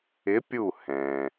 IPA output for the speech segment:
ɪ˨˦ pʲ u˧˩ h ɛ̃˩

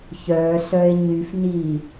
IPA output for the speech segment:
ç œ s œ e̯ ɲ y f n i

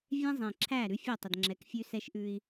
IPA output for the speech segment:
vʲ ɛ̃˦ zˤ ẽ˨ ǁʰ æ˦˨ ɾ ʉ˦ fʲ o˦˨ tˤ ə˨ d ŋ͡ǁ ɛ˨˦ k fʲ ʉ˦ s ɛ˦ ʃ ʔ ʉ˦ i̯

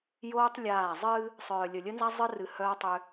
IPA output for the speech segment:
j oː˦ tˤ lʲ aː˦˨ zˤ ɨː˦ | sˤ œː˨ lʲ ə˨ lʲ ə˦ n z a˦ zˤ ɨ˦ r ɨ˨ h œː˦ tˤ ʏ˦

